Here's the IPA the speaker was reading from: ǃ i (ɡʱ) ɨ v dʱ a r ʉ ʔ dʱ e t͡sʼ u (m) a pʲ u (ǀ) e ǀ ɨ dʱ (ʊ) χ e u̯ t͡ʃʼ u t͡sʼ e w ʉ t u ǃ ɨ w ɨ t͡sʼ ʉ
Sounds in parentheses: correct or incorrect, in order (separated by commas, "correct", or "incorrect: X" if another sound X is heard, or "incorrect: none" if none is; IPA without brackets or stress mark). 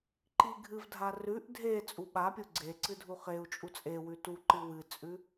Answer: correct, incorrect: ɓ, incorrect: ɡ͡ǀ, incorrect: u